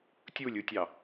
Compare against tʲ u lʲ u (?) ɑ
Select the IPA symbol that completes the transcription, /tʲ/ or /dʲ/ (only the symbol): tʲ